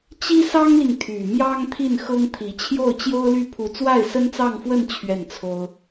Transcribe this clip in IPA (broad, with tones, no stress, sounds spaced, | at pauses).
t͡ɕ i˥ s ɑ˥ ŋ l i˨ ŋ t̪ʰ y˨˩ m j ɑ˥ ŋ t̪ʰ i˥˩ n x ɤ˥ ŋ t̪ʰ i˧˥ t͡ɕʰ j o˥˩ ʊ̯ t͡ɕ j o˥ ʊ̯ l y˥˩ pʰ u˧˥ t͡s w a˥˩ ɪ̯ s ə˥ n t͡s ɑ˥˧ ŋ f w ə˥˧ n t͡ɕʰ ɥ ɛ˥˩ n t͡sʰ o˥ ʊ̯